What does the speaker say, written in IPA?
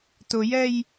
t ʊ j ɛ j

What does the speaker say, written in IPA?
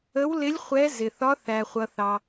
ə˧˥ w l ɪ˧˥ lʲ χʷ ɛ˧˥ z ɪ˩ θ ɒ˧˥ θ æ˩ χʷ ʌ˩ θ ɑ˩

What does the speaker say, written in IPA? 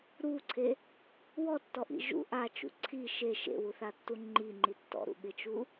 ɾ u ǀʰ e | w ɔ tː ɔ ʔ ḭ ʒ ṵ ʔ a t͡ʃ ṵ ǀʰ i ʃ e ʃ ḛ w u θ a tː u ŋ͡ǃ i ŋ͡ǃ i tː ɔ̰ ɾ ṵ ɠ ɪ t͡ʃ u

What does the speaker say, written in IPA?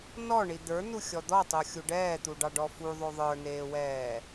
n ɔ ɳ i d̪ ə˞ n u xʲ ɔ d̪ ɔ tˤ o xʲ u ɖ ɛː t̪ u ɖ ɑ ɖ ɔ f u ðˤ o ðˤ ə˞ n eː w ɛː

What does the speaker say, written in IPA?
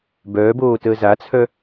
b œː b oː t əː z a t͡sʰ œ

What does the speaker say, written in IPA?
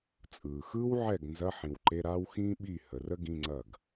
t͡sʼ ɯː˩ x ɯː˥ w ʕ ɛ˥˩ ɡ n z ɐ˧˥˧ ħ ĩ˩ w ǃ e˧˥˧ ɾ aː˥ w x ĩː˥ ɓ i˥˩ h ə˩˧ r ə˥ ɡ ĩ˧˥˧ ŋ͡ǀ ɐ˥˩ ɡ

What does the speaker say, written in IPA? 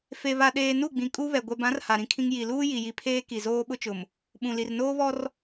f e˨ β a˨ ɗ eː˨ n u˦˨ ɡ͡b ĩ˨ kʼ u˦ β ɛ˨ ɡʷ ɛ˨ b ã˨˦ r h a˨ ɾ ĩ˦ kʰ ĩ˦ ŋ j i˨ l uː˦ j i˨ j i˨ pʰ eː˦ k i˨ z oː˦ ɓ ʊ˦ t͡ʃ ʊ˨ m | ɓ ũ˨ l i˨ r n oː˦ β ɔ˦ r

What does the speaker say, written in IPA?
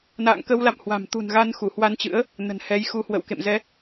n a̰ː˧˨ ŋ k ə˧ w l a̰˧˨ m h w a̤˨˩ m t̪ ṳ˨˩ n ɣ a˧ n x u˧˩ h w a˧ n t͡ɕ ɨ̰˧˥ ə̯ | n ə̤˨˩ n h ɛ˨˦ j x u˧ h w ə̰˧˨ w k ḛ˧˨ m z ɛ˨˦

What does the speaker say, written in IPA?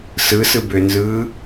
s ɯ s ɯ b ø n z ɯː

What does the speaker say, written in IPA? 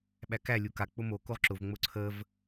ɓ æ k æ lʲ u k a k͡p ʊ m o k o ʁ ǁ ʊ v ŋ͡m ʊ ǀʰ ə v

